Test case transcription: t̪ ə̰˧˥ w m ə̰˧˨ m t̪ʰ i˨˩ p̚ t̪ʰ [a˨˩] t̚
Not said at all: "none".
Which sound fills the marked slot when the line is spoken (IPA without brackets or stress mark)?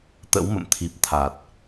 a˨˩